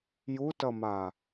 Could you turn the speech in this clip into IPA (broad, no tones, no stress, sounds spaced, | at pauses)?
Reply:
j u t ʌ m a